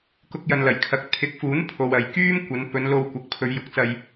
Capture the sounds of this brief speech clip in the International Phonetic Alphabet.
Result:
k ʊ˧ k̚ j ɐ˨ n l ɐ˨˩ j kʰ ɐ˨˥ k̚ t̪ʰ ɪ˨˥ k̚ f uː˨˥ n pʰ o˨ w ɐ˨ j k yː˥ m kʷ ɐ˨˧ n p ɵ˨˧ n l o˧ w kʷ ɐ˨˥ k̚ pʰ ɵ˨˧ ɥ j ʊ˨ k̚ t͡s ɐ˧ j

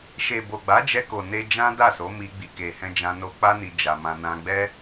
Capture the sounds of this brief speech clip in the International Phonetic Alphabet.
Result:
ʃ e˨ b o˨ ɡ͡b a˨˦ d͡ʒ ɛ˧ k o˨ n e˧ d͡ʒ ã˦ d a˦˨ s o˨˦ m i˧ ɡ͡b i˨ k e˨ h ɛ̃˧ d͡ʒ ã˧ n o˧ k͡p a˦ n i˧ d͡ʒ a˧ m ã˧ n ã˧ ɡ͡b ɛ˦

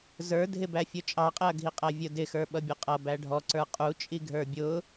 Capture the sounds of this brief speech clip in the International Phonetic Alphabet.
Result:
z ə˞ dʱ ɪ b æ fʲ ʊ t͡ʃʼ ɑ qʼ ɪ ɐ̯ ɡʱ i qʼ æ vʲ ʊ d ɪ x ə˞ ɓ ʌ bʲ ʊ qʼ ʌ b æ ɖʱ ɔ ǀ ə˞ qʼ u t͡ʃʼ i ɡʱ ə˞ bʲ ʊː

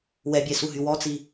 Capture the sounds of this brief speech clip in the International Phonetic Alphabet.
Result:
w ɛ bʲ ɛ s u ɦ y w ɔ t͡s i

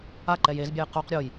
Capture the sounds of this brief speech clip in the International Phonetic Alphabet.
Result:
a ǃ ɛ j e z bʲ ɛ j q u q ɾʲ o j

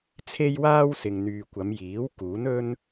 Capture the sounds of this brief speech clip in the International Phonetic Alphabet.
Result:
t͡sʰ e˥ j w aː˥ w s ɪ˨ ŋ n̪ yː˨ kʷ ɐ˨˧ m j iː˨˥ w k uː˨˥ n ɵ˥ n

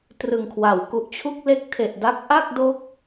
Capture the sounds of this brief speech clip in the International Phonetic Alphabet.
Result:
t r ɯ˨˩ ŋ kʰ w a˩˦ w k u˨˩ ʔ t͡ɕʰ u˥˩ k̚ l e˦˥ k̚ tʰ e˨˩ ʔ d a˦˥ k̚ ʔ a˥˩ k̚ d o˦˥ k̚

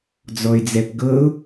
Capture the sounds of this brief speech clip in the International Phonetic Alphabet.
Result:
d͡z ɔ ɪ̯ d͡z ɛ p ɡ ɤ ʊ̯

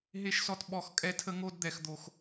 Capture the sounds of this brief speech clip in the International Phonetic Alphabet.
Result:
ɦ e˦ ʃ s ɔ˦ t ɓ ɔ˦˨ x kʼ ɛ˦ tʰ ə˦ ŋ o˦ d d̪ ɛ˧ x d̪ o˧ x

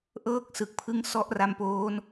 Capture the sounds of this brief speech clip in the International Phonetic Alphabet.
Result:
ʔ ɤː˥˩ k̚ s ɯ˨˩ k̚ pʰ ɯ˦˥ ŋ s ɔ˦˥ ʔ r a˧ m p oː˦˥ n

